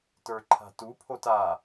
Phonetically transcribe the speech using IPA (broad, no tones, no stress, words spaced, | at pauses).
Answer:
tə˞ǃʰa̤tu pʰota